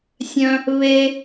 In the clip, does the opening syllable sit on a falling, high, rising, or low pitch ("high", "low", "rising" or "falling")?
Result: high